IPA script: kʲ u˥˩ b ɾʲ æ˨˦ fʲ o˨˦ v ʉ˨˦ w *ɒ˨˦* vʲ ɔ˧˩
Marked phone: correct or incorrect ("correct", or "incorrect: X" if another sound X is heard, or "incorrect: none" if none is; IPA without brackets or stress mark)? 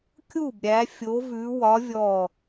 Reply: correct